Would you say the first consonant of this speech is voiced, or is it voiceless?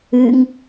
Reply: voiced